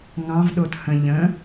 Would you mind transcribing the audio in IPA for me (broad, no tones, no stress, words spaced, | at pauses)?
ŋɑ̃v ɗothə̃ ʎə̃